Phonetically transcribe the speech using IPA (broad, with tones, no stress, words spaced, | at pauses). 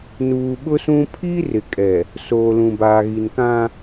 nuː˨ɓʊ˦sũ˦ pʰi˦ rɪ˨kʼɛ˨ | soː˨lũ˨baː˨ɣi˨n kã˦